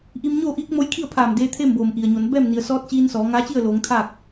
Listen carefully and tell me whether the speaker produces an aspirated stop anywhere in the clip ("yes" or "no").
yes